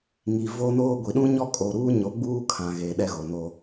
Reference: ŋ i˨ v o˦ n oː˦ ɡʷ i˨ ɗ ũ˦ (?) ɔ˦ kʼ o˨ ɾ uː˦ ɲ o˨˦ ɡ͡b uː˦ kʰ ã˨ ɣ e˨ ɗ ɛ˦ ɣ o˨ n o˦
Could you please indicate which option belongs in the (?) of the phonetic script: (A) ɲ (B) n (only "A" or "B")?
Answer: A